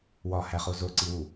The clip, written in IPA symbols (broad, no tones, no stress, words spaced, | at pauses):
wɒhæχo zoǀiwu